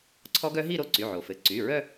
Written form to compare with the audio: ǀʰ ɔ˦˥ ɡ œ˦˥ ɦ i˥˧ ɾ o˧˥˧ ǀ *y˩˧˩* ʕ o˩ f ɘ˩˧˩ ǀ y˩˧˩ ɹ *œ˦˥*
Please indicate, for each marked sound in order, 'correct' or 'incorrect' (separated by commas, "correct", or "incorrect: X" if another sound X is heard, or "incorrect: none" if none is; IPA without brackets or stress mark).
correct, incorrect: œ˥˧